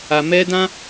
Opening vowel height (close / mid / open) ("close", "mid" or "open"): open